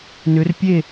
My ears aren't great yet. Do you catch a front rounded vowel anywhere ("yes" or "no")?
yes